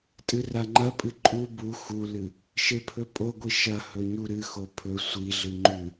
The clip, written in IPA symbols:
tʼ ɨ r a ŋ͡ǃ ɐ pʼ ɨ ǃʼ u b u x u l ɨ | ʃ e pʰ ɵ pʼ o ɡʷ i ʃ ɐ h ɵ ɲ u ɾ ɨ x o pʰ ɵ sʷ i ɮ ɨ ŋ͡ǃ ʉ

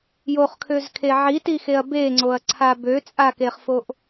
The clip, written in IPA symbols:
j o χ kʰ ø z kʰ e ʕ i t i x e ɐ̯ b e ŋ͡ǀ o ɐ̯ ǀʰ a b ø t͡sʼ a k e χ f o ʔ

